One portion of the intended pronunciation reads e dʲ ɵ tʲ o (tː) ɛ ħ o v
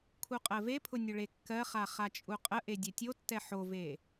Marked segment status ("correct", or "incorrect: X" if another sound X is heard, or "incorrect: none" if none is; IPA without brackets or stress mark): correct